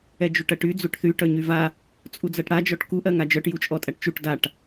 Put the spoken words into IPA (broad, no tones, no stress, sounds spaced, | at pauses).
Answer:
ɛ d͡ʒ u ʈ ɜ ʈ y d͡z u ʈ θ y ʈ œ ɲ y v a | t͡sʼ u d͡z ɜ ʈ ɽ a d͡ʒ ɔ ʈ k u ʔ ɜ ŋ a d͡ʒ œ ʈ j u t͡ʃʼ ɔ tʼ æ ʈ t͡ʃ u ʈ d a ʈ